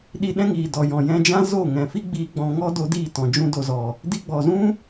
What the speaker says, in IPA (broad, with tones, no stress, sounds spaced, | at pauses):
ɗ i˧ ɗ ɛ̃˦ ŋ iː˨ d ɔ˨ j ɔ̃˨ j ɛ̃˧ d͡ʒ ã˦ z o˦˨ ŋ ɛ̃˨ f i˦ ɡ͡b iː˧ ɡ͡b ɔ̃˧ ŋ ɔ˦ d o˧ d iː˦˨ t ɔ̃˨ d͡ʒ ũ˧ d o˨ z ɔ˨ | d i˧ ɡ͡b ɔ˨ z ũ˦